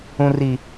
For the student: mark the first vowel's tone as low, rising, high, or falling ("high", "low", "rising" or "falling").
low